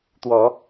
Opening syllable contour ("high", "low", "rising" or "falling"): rising